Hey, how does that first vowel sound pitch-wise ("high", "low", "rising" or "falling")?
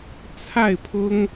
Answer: falling